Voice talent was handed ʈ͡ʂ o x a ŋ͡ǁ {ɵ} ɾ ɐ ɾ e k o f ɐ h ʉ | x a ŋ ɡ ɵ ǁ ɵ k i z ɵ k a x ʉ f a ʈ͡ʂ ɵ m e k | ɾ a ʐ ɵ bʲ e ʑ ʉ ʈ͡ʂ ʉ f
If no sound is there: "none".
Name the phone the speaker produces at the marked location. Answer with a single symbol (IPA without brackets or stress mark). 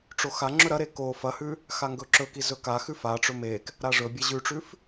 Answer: ɵ